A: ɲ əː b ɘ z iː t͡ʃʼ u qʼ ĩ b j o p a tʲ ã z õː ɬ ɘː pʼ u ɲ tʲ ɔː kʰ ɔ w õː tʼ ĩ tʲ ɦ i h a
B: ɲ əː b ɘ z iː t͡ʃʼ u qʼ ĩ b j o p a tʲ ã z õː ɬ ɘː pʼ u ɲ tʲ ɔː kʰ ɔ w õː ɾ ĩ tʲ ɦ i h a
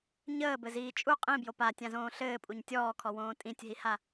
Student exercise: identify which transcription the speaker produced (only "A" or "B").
A